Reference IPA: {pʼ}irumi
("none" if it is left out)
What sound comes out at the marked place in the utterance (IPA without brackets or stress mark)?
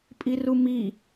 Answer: pʼ